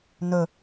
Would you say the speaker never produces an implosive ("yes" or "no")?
yes